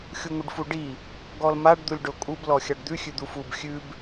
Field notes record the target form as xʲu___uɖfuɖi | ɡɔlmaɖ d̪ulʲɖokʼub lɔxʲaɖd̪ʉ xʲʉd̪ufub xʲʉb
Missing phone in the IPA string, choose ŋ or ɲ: ŋ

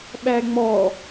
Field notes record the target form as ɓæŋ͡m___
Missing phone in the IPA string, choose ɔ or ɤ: ɔ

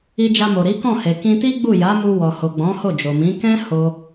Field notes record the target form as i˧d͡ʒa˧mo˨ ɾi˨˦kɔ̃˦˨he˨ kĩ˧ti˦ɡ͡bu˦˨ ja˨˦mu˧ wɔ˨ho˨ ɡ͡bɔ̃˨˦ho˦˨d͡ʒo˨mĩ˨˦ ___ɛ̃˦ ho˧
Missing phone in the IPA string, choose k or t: k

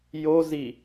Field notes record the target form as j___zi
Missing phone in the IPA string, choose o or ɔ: o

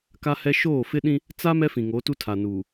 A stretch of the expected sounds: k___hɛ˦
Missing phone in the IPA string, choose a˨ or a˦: a˦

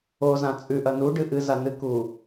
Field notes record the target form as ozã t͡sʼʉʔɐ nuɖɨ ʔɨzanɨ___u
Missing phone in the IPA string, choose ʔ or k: k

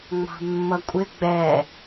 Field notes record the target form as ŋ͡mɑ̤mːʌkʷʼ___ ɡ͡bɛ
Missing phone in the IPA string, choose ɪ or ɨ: ɪ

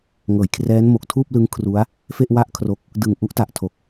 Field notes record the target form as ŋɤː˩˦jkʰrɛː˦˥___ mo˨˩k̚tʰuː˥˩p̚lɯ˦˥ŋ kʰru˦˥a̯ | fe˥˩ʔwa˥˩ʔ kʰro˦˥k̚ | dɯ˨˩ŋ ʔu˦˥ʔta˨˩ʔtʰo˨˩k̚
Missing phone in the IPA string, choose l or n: n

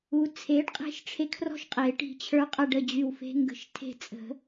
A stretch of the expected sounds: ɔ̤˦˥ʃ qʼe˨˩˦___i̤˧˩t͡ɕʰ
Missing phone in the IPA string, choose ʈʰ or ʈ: ʈ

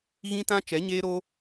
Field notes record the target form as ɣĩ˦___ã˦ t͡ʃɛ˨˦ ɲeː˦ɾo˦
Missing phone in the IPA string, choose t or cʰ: t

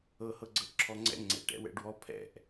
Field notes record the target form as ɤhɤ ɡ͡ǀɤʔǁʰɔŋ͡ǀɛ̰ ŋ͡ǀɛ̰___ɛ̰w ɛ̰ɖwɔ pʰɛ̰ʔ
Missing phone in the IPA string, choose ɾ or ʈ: ʈ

